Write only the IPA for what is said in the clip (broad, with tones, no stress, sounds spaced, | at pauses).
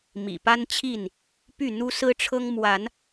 m ḭ˨˩ p a˦ n t͡ɕʰ i˥˨ n | p y˥˨ n̪ u˦ s ɹ̩˦ ʈ͡ʂʰ ɤ˦ ŋ m w a˨˦ n